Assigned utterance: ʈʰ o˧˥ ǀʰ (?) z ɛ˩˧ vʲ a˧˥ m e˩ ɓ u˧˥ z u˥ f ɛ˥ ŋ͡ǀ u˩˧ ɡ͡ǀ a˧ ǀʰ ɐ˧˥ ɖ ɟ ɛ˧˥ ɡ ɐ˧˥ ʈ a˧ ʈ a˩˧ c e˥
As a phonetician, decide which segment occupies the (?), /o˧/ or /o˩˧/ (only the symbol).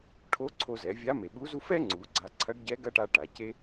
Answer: o˧